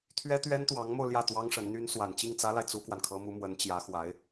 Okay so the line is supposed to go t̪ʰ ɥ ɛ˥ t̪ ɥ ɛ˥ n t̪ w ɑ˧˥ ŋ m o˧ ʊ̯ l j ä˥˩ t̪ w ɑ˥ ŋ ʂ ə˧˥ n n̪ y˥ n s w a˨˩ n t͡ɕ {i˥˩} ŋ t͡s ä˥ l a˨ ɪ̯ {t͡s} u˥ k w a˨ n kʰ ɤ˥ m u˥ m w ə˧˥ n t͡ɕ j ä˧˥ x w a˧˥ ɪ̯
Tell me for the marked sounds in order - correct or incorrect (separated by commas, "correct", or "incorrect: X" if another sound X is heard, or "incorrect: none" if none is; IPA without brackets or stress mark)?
correct, correct